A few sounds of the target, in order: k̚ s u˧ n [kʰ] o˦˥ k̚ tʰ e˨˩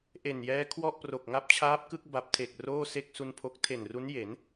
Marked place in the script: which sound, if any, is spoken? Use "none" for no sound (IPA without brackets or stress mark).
pʰ